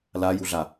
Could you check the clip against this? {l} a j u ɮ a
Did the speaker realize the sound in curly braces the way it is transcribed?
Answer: yes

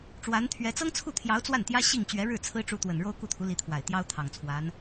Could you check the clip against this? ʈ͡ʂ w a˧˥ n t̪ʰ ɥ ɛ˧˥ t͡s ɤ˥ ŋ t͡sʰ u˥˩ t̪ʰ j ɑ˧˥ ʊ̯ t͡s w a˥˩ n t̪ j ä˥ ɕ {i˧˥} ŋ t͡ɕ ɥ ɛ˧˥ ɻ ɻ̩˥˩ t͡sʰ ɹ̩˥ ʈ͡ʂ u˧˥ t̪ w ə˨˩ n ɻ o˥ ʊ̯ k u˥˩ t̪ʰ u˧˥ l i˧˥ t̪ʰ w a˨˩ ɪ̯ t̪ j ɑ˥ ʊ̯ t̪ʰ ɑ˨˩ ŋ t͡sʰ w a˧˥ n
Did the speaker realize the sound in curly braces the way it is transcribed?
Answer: no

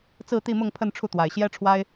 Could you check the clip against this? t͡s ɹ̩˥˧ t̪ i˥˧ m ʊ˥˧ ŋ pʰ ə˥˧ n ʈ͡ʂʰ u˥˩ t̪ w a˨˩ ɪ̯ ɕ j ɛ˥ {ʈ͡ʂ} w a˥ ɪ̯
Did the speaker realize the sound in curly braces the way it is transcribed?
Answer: no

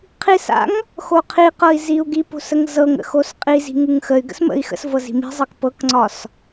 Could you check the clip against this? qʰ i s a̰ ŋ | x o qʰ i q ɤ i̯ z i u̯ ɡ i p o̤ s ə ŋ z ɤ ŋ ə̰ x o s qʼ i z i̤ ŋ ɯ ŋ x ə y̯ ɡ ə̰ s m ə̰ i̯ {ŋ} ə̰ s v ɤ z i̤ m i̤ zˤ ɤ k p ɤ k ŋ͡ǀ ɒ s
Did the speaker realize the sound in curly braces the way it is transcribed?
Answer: no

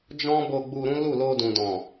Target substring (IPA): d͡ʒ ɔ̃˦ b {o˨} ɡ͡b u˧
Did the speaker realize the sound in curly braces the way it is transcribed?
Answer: no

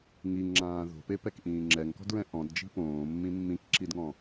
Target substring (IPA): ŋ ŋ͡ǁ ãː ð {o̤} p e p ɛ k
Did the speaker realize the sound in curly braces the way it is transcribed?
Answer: yes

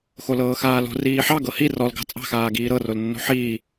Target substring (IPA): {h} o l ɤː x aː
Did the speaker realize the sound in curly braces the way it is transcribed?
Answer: no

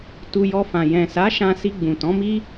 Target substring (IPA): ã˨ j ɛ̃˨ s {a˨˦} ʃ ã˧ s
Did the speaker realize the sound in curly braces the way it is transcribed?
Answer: yes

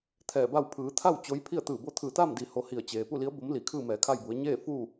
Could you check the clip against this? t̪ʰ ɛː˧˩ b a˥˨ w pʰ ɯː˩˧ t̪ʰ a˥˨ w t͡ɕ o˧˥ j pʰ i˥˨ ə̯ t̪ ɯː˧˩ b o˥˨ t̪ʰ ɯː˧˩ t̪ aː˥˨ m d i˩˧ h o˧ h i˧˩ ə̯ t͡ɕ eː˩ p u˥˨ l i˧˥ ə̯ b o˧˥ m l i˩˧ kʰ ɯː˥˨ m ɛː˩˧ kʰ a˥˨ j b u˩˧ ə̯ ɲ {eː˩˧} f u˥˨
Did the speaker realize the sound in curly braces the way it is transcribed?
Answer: no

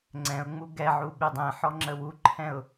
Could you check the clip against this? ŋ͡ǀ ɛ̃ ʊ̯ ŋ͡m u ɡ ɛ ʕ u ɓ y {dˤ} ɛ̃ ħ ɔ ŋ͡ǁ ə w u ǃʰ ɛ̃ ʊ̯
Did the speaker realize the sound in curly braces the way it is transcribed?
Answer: yes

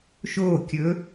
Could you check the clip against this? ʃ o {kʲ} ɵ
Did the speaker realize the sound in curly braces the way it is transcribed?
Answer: yes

